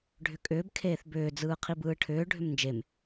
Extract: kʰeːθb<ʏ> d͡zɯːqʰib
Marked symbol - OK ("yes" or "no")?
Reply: no